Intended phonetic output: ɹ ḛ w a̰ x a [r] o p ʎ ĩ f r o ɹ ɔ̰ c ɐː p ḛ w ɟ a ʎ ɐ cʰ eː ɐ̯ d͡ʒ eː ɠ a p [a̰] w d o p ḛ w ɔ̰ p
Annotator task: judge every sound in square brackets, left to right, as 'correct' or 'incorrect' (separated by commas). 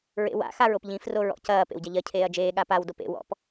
incorrect, incorrect